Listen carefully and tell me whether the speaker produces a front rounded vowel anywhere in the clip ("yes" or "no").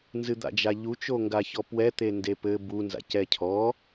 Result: no